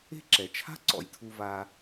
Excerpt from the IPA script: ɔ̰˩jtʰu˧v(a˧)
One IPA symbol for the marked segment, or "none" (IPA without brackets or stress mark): a˧